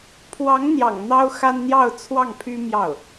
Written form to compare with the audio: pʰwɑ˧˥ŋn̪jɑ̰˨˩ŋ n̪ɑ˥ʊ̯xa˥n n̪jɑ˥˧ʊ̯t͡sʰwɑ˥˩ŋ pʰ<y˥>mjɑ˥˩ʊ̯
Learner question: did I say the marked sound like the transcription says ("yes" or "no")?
yes